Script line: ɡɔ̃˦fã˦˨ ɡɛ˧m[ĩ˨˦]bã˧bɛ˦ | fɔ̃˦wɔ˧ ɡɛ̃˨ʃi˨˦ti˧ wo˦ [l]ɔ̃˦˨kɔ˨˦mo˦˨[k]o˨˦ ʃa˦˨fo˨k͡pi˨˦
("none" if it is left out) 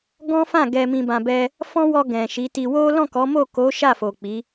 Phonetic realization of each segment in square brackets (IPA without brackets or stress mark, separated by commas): ĩ˧, l, k